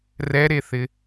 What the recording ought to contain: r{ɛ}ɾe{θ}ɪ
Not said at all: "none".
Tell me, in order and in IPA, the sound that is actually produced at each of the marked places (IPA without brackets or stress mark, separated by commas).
ɛ, θ